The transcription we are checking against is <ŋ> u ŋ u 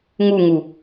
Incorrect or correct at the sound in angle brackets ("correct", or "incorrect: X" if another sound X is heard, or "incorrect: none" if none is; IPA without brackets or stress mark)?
correct